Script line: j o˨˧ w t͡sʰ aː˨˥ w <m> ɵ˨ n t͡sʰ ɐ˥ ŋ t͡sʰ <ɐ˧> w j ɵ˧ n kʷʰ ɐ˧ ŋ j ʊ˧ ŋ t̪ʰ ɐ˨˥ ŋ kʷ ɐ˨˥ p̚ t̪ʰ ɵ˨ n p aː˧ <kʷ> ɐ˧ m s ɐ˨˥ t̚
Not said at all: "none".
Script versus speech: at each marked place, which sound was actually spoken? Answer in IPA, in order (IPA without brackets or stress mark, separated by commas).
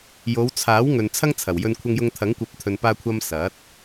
ŋ, ɐ˨˩, kʷʰ